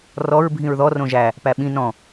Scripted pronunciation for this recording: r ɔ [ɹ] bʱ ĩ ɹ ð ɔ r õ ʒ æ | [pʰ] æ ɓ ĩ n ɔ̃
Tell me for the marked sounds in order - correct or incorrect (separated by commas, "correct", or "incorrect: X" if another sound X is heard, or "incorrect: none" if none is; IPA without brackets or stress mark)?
correct, incorrect: p